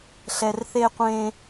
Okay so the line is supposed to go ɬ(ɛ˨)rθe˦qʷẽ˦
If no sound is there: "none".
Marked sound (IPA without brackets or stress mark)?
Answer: ɛ˨